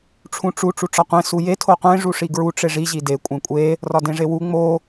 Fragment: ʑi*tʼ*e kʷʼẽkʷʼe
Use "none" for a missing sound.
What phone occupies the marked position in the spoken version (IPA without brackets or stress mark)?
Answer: d